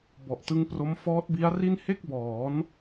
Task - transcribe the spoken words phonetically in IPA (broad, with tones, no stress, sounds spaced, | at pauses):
b ɔ˨˩ ʔ t ɯ˦˥ ŋ p r o˦˥ m f ɔː˦˥ t̚ b i˦˥ a̯ r i˥˩ n h e˥˩ k̚ b ɔː˩˦ n